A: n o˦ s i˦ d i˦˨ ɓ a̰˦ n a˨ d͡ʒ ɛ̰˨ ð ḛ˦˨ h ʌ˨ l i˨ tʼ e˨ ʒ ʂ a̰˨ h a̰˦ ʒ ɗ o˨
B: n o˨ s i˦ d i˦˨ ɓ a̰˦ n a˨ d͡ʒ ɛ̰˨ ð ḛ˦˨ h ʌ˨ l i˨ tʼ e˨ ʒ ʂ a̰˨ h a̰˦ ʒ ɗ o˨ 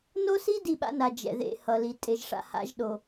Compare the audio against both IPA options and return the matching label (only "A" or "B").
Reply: A